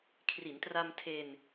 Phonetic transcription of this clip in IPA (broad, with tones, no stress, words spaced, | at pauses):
kʰri˩˦ntra˧mtʰe˧n